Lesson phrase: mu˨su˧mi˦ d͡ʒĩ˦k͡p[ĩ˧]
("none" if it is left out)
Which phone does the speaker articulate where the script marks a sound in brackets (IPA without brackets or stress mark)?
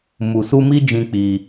i˧